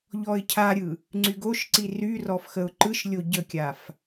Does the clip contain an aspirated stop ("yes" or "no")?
yes